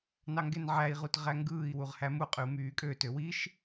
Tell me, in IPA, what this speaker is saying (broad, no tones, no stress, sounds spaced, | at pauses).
n ɑ ŋ ɡ e n ʕ æ i̯ ʁ u t ʁ æ ŋ ɡ ɯː i̯ w u ʁ h æ m u qʼ y u̯ m yː kʼ ø t ø w i ʃ